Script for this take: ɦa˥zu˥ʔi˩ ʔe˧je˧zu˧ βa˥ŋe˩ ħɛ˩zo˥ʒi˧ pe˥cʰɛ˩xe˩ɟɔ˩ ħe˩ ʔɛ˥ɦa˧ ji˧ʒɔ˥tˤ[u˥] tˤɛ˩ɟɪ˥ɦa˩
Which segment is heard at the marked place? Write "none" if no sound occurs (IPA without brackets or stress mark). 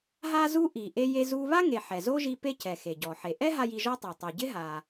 u˩